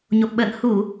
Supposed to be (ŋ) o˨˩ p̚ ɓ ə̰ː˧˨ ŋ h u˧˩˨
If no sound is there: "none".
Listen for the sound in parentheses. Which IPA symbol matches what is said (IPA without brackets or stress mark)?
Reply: ɲ